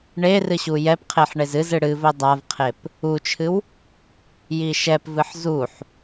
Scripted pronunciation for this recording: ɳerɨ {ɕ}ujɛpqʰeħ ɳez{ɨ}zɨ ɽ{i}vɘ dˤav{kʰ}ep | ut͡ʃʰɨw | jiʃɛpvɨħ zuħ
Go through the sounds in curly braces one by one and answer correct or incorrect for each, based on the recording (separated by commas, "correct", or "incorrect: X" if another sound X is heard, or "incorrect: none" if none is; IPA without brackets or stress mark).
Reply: correct, correct, incorrect: ɨ, incorrect: qʰ